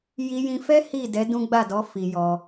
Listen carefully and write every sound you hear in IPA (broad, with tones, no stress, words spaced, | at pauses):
ji˧jĩ˧fɛ˦ hi˦˨dɛ˨˦ dũ˦ ɡ͡ba˦˨dɔ˨˦ fi˧jɔ˧